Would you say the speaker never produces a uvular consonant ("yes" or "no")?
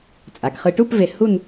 no